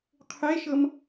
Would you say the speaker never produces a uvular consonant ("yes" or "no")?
no